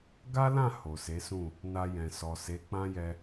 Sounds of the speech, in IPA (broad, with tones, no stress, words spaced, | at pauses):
ɡa˦lã˦˨ ho˨se˨˦sũ˦˨ | na˧jɛ̃˨ sɔ˨se˨˦ k͡pã˦jɛ˧